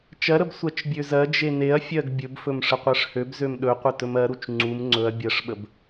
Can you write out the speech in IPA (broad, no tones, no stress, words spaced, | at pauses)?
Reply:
t͡ʃɜɾəb sʷɜt͡ʃbʲøzɜd͡ʒe neɐ̯fʲɜɡ bʲɵbfɵm ʂəqʷɜʂhøbzøm ɗɵqʷə tɵmɜɾut͡ʃ ŋ͡ǀum ŋ͡ǀɵɐ̯ bʲɜʂɓəb